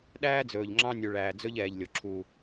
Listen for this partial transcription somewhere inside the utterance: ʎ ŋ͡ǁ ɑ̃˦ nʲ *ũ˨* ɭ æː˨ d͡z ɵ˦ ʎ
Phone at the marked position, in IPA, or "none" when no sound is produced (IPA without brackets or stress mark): u˨